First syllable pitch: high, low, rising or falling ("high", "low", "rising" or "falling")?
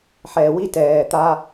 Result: low